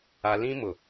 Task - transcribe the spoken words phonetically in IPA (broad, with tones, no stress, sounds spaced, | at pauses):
a˦ l ĩ˦ m ʊ˨